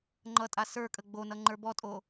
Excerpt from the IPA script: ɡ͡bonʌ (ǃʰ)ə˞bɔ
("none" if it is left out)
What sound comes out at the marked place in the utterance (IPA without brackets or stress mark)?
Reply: ŋ͡ǃ